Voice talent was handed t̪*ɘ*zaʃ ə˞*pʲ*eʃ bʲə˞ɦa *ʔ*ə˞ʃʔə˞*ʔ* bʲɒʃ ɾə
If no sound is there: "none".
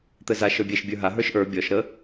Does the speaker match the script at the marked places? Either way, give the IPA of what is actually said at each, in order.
ɘ, bʲ, ɦ, none

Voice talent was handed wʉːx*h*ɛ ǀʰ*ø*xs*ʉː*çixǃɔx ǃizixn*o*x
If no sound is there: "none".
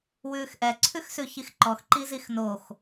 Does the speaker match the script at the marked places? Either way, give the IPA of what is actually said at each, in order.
ʔ, ʉ, ʉ, o

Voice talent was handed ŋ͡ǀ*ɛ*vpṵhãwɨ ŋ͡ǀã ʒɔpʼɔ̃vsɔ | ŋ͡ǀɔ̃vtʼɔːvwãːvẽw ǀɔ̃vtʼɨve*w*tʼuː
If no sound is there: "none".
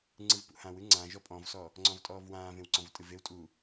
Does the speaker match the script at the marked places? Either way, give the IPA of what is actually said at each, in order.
ɨ, w

